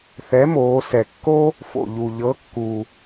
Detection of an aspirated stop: absent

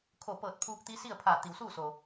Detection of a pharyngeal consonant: absent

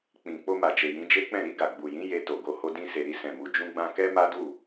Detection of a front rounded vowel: absent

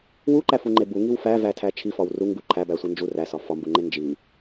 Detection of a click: present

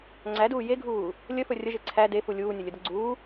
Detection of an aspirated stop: present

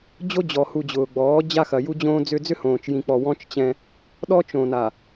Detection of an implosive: present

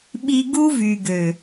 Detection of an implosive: present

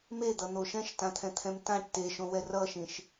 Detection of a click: absent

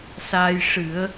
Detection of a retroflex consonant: present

